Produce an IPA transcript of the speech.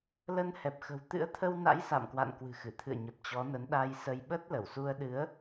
l ə˧ n h ɛ˨˩ p̚ x ə̤˨˩ w t̪ ɨ̰˧˥ ə̯ t̪ʰ ə˧ w n a̰˧˥ j s a̰˧˨ m k w a̰˧˨ n k w ɨ̤˨˩ x ɨ˧˩ t̪ʰ ɨ̰˧˨ ə̯ ɲ ə˨˩ p̚ t͡ɕ ɔ˨˦ n ə˨˦ n ɗ a˧ j s ə˧ j ɓ ə˦˥ t̚ l ə˧˩ w s u˧ ə̯ ɗ ɨ˨˦ ə̯

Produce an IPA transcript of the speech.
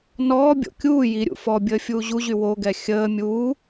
n ɔː bʲ o̰ kʲ uː j i ɾʲ ṵ f ɔ bʲ əː fʲ uː ʑ u ʑ y w o ɡ ɛ xʲ əː mʲ uː

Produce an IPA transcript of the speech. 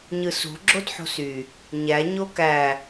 ɲ ɯ s ṳ ɡ͡ǁ o d ħ o̤ s y | ɲ æ ɲ o k æ

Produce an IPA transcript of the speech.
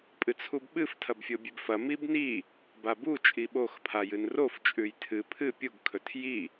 pʼ ɨ t͡sʰ u b ɓ ɨ f tʰ ɐ b fʲ o bʲ ʉ b f ɐ m i b n i | b a b u t͡ʃʼ i ɓ o x pʰ a j ɨ n r o f t͡ʃʼ ʉ j tʰ ɨ pʰ ɨ pʲ u ɡ kʰ ɵ tʰ j i

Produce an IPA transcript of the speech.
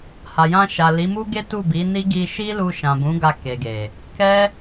h a˨ j ã˧ ʃ a˨ l i˨˦ m u˦ ɡ e˦ t u˦˨ b i˨˦ n i˦ ɡ i˧ ʃ i˦ l u˧ ʃ ã˨ b ũ˨˦ ɡ a˧ k e˨ ɡ e˨ | k ɛ˦

